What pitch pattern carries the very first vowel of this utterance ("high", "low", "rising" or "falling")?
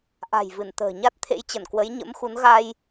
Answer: low